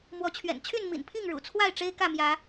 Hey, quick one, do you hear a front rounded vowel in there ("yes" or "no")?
yes